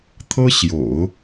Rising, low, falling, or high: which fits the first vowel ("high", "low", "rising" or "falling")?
high